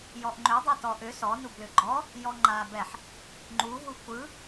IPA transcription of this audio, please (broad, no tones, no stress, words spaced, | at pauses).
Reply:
jɔʔŋ͡ǃʏ dˤɯtɔʔʏ sɔ nublʏɡ͡ǃɔ | jɔŋ͡ǃa bɛħ | ŋ͡ǃuɦu kʷɯ